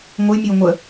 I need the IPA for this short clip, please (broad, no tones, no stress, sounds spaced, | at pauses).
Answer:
ŋʷ ə j mʲ o ŋʷ ə